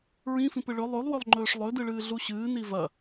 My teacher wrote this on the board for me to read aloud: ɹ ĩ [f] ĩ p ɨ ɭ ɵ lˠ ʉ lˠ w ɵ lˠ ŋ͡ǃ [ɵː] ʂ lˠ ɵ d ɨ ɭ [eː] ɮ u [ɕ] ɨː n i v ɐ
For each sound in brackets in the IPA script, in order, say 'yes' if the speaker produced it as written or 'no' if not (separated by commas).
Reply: yes, yes, no, yes